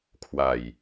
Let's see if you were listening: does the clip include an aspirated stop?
yes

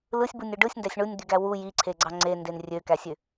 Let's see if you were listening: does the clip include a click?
yes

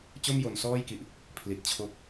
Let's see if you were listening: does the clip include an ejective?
no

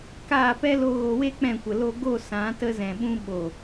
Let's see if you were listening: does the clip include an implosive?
yes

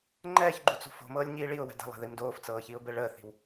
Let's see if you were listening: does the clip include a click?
yes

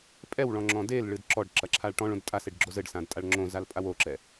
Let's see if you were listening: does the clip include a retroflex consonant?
yes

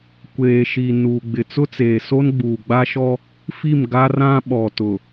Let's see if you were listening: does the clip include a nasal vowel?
yes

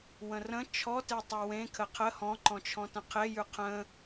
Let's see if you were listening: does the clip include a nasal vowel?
yes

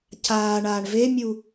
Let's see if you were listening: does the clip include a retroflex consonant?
yes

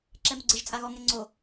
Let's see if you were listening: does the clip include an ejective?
yes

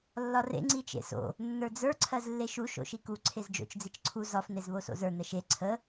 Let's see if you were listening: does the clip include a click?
yes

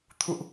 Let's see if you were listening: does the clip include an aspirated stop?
yes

